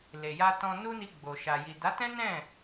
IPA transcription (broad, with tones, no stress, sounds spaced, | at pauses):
l e˨ j a˧ t ɔ̃˧ n u˦ n i˧ ɡ͡b o˨ ʃ a˨ j i˨ d a˨˦ t ɛ̃˦ n ɛ̃˦˨